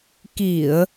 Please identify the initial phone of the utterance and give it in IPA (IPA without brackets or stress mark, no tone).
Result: k